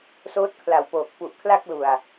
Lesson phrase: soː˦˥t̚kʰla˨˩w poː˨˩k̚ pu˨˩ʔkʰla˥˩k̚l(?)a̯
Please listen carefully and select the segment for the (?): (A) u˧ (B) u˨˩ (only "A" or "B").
B